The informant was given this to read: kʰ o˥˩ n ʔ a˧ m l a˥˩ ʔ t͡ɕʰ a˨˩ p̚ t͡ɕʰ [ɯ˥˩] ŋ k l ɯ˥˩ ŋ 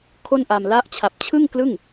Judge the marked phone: correct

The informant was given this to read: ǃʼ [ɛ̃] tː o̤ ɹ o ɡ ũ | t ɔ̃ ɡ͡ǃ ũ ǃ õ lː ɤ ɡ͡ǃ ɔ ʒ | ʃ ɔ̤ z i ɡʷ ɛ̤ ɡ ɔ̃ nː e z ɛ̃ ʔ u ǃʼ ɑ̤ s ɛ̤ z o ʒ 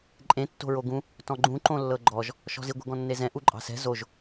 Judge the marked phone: incorrect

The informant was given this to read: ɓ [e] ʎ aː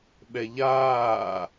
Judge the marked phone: incorrect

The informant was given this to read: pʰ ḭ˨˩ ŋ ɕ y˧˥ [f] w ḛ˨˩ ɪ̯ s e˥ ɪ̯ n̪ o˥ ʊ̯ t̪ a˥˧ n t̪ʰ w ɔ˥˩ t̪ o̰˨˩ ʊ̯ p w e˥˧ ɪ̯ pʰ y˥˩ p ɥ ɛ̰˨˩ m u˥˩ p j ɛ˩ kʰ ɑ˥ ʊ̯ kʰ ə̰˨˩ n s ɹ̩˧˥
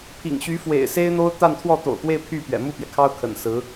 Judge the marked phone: correct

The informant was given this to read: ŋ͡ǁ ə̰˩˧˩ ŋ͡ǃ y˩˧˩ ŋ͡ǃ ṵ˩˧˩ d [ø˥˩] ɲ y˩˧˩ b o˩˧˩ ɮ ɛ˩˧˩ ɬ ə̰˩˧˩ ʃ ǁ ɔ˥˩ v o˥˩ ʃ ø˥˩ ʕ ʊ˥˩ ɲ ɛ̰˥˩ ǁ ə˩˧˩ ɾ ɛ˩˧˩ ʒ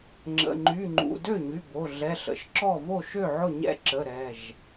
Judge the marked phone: correct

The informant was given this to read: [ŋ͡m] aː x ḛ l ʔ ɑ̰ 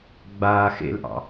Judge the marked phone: incorrect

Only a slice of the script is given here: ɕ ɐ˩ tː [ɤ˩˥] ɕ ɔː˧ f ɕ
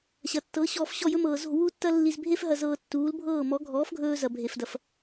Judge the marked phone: correct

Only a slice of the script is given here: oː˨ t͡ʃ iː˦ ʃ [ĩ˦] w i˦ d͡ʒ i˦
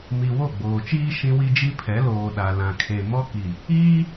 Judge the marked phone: correct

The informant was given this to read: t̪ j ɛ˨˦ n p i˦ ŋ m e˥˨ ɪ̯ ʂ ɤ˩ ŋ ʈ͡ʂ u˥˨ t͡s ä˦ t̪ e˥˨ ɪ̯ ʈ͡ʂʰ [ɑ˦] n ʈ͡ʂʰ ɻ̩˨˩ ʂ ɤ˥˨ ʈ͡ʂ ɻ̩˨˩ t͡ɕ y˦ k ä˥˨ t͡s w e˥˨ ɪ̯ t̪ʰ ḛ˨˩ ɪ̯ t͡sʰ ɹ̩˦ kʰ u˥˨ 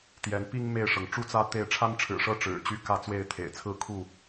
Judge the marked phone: incorrect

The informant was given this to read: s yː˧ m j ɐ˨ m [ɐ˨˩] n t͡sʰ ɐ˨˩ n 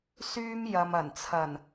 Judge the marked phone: correct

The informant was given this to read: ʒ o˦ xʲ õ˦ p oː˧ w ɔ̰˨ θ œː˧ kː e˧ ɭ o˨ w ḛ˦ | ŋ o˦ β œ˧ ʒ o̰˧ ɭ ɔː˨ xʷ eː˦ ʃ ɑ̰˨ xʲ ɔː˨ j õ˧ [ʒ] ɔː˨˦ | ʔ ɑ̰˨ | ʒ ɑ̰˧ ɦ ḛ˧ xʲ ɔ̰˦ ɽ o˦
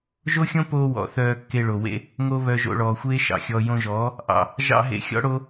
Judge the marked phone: correct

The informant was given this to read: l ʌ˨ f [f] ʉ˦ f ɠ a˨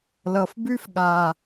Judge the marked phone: incorrect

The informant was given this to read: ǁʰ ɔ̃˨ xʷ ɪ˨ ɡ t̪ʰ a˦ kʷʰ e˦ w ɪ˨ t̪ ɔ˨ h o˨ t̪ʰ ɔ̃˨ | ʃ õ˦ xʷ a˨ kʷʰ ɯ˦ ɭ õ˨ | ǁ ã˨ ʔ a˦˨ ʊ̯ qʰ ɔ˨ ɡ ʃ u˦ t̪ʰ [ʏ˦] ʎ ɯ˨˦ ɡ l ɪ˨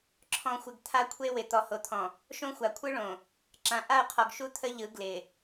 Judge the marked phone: incorrect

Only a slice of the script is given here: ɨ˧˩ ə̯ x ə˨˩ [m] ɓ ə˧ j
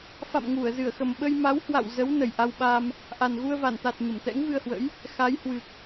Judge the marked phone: correct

